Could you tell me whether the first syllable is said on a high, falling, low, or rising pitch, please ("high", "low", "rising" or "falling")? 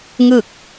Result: falling